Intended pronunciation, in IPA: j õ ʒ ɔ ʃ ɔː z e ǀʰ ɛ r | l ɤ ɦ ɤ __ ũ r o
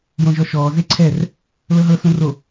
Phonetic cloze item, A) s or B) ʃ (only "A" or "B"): A